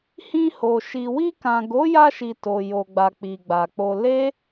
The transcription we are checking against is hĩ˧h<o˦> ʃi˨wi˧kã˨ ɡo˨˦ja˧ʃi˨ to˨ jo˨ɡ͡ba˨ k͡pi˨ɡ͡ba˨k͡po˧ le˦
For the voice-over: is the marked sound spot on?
no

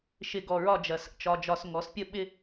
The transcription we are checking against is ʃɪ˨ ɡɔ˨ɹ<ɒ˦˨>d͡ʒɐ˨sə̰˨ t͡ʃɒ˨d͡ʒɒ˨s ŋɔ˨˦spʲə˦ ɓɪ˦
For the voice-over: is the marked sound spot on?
yes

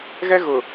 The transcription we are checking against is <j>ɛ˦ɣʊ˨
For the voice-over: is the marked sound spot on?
no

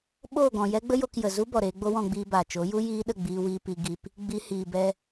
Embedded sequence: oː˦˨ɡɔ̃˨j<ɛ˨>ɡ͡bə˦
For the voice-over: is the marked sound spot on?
no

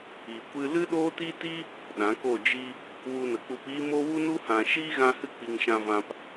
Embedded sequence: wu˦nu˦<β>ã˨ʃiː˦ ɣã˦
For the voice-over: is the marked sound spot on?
no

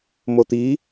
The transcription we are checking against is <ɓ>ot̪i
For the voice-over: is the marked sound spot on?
no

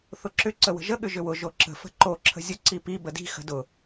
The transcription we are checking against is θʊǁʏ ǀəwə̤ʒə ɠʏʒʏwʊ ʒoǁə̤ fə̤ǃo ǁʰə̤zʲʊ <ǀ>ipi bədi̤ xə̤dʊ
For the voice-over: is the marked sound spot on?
yes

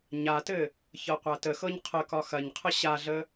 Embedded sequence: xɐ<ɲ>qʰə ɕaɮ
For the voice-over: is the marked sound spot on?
yes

